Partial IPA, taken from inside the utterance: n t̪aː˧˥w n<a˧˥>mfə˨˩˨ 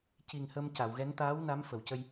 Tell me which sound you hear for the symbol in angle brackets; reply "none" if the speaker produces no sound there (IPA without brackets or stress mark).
a˧˥